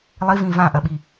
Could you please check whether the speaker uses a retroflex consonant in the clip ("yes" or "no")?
no